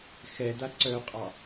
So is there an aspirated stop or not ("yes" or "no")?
no